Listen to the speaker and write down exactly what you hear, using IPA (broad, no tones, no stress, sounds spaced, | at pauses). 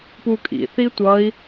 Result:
p u kʼ ḭ θ i tʷ ʌ i̯